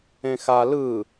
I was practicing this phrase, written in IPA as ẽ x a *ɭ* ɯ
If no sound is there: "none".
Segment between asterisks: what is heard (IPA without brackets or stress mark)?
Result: l